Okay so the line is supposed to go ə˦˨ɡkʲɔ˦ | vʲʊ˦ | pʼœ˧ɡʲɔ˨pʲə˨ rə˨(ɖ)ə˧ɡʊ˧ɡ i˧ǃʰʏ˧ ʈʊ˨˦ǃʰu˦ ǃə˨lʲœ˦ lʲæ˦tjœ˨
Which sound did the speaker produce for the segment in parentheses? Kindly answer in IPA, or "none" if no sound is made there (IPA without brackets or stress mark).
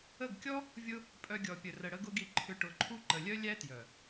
ɽ